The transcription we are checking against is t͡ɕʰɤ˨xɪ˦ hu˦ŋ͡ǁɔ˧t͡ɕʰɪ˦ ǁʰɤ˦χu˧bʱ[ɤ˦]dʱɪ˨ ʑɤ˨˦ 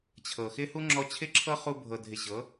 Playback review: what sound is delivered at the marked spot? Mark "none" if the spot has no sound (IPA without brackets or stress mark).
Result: ɤ˨